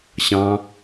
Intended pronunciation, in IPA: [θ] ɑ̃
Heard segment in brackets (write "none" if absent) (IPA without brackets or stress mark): ɕ